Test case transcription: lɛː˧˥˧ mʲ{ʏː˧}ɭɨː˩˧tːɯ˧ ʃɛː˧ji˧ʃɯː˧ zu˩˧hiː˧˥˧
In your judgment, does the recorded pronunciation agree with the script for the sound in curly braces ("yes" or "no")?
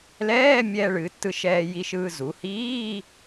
no